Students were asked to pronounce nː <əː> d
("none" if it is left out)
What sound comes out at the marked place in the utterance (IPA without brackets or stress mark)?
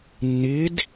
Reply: ɪː